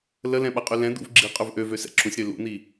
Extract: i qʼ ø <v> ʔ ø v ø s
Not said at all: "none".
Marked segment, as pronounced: v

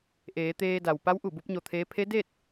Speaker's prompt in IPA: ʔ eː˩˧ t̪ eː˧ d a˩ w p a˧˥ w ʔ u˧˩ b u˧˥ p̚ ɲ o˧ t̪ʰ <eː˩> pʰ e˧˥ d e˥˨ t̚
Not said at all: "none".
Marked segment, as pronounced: eː˧˥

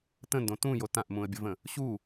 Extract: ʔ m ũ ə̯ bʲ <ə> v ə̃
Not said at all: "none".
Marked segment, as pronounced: ə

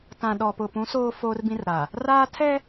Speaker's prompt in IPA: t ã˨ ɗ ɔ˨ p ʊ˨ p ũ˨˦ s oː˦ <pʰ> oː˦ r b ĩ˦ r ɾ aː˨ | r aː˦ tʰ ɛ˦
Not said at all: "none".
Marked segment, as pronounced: f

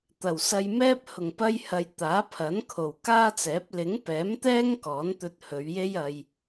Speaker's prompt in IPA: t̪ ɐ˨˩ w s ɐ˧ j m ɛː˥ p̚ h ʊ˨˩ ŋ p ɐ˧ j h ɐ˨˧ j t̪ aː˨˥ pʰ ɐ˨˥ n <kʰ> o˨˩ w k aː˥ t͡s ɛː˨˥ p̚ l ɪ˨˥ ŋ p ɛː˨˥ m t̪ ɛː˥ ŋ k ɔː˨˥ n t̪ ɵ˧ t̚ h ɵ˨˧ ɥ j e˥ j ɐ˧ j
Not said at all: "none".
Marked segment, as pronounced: kʰ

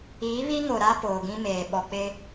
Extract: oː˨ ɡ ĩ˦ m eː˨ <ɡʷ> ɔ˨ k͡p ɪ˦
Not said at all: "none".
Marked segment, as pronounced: ɓ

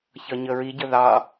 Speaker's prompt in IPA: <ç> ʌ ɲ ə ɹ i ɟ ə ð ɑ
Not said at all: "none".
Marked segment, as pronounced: ç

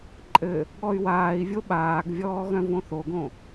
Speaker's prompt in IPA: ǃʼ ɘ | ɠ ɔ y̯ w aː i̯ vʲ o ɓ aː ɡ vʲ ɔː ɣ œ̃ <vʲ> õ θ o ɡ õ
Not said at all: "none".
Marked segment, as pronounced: v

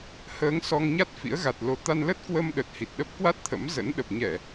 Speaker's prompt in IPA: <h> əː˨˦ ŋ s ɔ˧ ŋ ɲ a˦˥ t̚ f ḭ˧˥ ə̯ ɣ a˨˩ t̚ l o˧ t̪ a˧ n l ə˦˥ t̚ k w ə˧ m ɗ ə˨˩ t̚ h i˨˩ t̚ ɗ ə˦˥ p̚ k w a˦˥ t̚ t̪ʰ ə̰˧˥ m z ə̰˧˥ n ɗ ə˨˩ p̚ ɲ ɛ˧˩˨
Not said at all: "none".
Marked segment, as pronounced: h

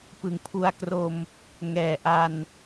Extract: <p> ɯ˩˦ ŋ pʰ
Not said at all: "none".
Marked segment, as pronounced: p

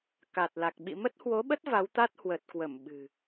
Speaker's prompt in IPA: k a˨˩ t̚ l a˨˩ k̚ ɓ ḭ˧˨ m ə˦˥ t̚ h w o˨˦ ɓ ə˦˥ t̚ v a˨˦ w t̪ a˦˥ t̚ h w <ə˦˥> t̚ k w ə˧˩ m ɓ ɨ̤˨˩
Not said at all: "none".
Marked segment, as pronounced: ə˨˩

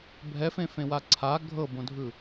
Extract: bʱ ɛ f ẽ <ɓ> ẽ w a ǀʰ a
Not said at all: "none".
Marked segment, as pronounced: f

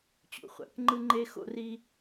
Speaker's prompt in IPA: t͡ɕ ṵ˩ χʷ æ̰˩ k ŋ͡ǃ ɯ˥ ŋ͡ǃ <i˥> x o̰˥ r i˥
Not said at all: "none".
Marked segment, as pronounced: e˥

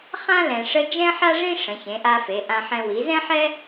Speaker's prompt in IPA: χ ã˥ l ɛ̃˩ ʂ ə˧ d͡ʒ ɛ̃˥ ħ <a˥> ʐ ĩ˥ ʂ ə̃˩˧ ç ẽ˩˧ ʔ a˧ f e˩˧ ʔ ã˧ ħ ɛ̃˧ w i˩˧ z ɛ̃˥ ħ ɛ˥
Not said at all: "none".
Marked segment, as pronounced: a˥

